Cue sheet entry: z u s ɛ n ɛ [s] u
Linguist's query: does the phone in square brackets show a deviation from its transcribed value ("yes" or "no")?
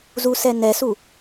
no